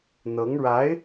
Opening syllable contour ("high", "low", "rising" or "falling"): rising